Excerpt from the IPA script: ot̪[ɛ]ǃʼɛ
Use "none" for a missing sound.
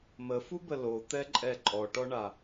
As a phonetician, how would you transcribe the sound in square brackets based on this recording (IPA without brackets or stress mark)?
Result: ɛ